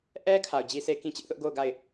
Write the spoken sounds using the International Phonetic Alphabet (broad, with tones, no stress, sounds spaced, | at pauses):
ʔ ɛ˦ kʰ a˨ ʊ̯ d͡ʑ i˦ sʰ e˦ k ĩ˦ t͡ɕ ɪ˦ ʔ θ ʊ˦ ʔ ɡ o˦˨ ʊ̯ ɡ a˦˨ ɪ̯